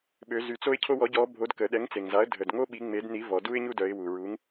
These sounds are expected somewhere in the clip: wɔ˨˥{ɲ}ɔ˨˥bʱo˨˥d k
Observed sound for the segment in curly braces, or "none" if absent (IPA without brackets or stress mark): ɟ